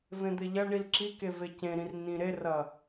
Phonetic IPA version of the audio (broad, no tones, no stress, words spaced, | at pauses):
vẽd̪eʎɐɳil ǁike vecẽɾĩr nĩɾerɐ